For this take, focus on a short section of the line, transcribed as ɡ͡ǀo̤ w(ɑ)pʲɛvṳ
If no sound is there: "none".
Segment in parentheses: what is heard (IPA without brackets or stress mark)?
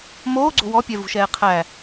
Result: ɔ